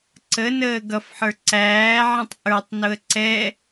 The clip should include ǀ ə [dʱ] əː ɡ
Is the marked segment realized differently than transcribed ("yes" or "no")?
yes